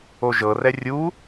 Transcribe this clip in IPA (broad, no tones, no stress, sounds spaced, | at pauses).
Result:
o ʒ ɤ r ɛ rʲ u